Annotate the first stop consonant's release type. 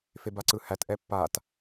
plain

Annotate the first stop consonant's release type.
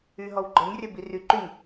click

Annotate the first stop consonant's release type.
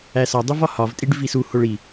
plain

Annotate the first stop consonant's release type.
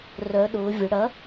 implosive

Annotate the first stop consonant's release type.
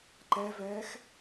click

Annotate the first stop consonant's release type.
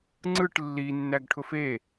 click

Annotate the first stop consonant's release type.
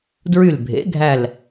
plain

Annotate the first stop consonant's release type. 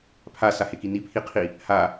aspirated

